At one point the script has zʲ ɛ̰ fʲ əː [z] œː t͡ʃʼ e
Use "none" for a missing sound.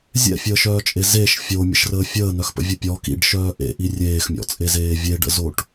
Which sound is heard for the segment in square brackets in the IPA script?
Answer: ʃ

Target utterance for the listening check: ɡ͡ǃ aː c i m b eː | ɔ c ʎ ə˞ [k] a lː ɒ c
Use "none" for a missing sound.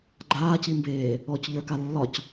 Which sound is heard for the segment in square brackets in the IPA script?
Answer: k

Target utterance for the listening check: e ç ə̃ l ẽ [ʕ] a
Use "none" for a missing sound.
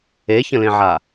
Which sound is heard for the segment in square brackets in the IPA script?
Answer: ʕ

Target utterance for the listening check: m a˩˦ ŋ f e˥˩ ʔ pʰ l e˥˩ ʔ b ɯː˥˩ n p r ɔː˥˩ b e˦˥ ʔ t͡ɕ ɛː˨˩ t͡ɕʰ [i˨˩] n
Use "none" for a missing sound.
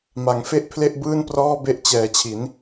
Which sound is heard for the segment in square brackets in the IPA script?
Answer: i˩˦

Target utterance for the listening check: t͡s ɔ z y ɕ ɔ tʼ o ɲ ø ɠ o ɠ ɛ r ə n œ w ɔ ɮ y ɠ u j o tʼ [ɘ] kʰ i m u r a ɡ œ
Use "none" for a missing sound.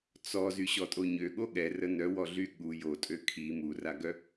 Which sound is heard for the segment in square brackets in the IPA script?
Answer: ø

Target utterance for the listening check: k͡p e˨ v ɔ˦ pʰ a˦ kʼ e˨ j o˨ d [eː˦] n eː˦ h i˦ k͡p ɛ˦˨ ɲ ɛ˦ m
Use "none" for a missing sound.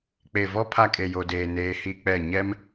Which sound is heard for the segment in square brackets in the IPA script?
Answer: eː˨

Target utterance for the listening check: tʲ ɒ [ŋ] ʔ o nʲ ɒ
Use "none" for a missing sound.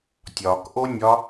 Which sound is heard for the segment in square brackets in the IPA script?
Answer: k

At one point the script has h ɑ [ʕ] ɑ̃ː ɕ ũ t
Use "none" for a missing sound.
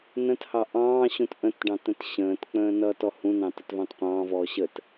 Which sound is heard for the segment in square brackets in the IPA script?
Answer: ʔ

